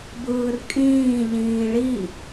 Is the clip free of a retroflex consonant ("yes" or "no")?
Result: no